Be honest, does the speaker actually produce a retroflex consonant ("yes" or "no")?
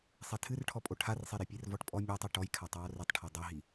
yes